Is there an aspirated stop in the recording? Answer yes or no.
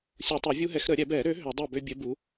no